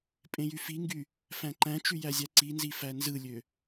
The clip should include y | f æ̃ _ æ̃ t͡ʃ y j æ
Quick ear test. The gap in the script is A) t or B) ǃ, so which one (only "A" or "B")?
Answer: B